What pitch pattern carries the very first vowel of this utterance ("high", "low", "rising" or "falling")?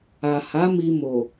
low